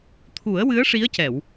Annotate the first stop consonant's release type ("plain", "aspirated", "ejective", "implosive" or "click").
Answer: aspirated